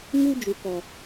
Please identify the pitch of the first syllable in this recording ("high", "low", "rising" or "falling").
high